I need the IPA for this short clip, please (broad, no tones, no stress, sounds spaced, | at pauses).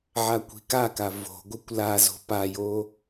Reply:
ʕ a kʷ i̤ k a k a v o̤ ɡʷ ɯ kʷ l a z o̤ p a j o